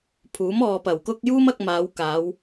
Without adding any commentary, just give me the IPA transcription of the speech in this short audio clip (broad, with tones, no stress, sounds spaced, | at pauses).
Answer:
pʰ uː˨˥ m ɔː˨ p ɐ˨˩ w k ʊ˥ k̚ j uː˥ m ɐ˧ k̚ m aː˨˧ w k aː˨˧ w